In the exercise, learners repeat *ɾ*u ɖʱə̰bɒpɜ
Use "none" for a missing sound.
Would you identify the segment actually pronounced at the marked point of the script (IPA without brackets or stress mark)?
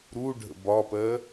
ɾ